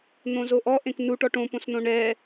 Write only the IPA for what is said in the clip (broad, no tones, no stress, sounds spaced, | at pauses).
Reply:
n̪ õ z o ʔ ɔ ʔ ẽ k n u ʈ ɔ ʈ õ p õ s n õ ɳ ɛ